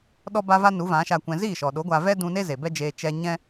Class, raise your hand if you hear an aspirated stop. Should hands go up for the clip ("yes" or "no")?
no